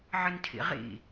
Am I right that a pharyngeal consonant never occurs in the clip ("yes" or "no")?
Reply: no